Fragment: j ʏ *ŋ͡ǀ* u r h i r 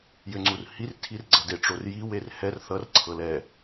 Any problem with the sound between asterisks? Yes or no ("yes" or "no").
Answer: no